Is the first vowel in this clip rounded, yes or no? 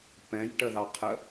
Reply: no